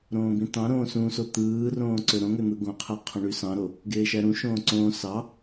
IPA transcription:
ɾ õː b ĩ t ɑ̃ ɾ õː s ũ s o t̪ ɯː r õː ǀ ø ɾ õ ŋ ø n̪ ɯ ɡ õ qʰ æ qʰ õ ɳ y s ɑ̃ ɾ o | ɡ eː ʃ æ ɾ ũ ʃ õː ǀ õː s ɑ

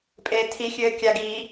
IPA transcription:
pʼ eː tʰ i xʲ ɘː kʲ a ɡ iː

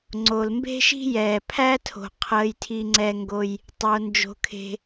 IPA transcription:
ŋ͡ǀ o˩ l m b e̤˥ ʃ i̤˥ j ɛː˩ pʰ æ˥ tʰ o̤˩ qʰ əː˩ j tʰ i˩ ŋ͡ǀ ɛː˩ ŋ ɡ o˩ j | tˤ o˩ n d͡ʒ o̤˩ kʰ e̤˩

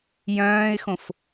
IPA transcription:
j œ̃ː ɪ̯ x õ f

